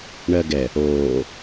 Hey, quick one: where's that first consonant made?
retroflex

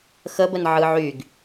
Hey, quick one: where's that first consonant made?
velum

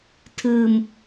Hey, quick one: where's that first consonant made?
tongue tip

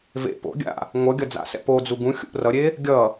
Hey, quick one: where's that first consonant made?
lips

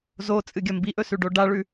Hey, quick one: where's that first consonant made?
tongue tip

